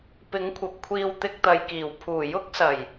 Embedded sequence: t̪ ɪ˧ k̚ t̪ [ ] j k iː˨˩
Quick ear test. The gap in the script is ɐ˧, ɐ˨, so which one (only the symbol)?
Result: ɐ˨